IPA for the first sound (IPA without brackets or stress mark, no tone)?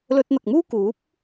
l